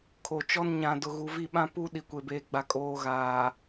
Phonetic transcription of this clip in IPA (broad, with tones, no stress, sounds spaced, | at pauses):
kʰ o˨ t͡ʃ ɔ˦ n ɲ ã˨ d ʊ˨ ɣ u˨ v i˦˨ ɓ ã˦ p u˦ ɗ i˨ kʷ e˨ b eː˨ ɡ͡b a˨ kʼ oː˨ ɣ aː˨